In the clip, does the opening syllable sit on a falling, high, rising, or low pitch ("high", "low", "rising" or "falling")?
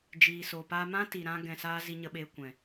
low